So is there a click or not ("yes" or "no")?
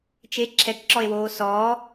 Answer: yes